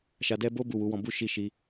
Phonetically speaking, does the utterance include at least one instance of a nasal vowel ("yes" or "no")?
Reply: yes